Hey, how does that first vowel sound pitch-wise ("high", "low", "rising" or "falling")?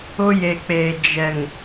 high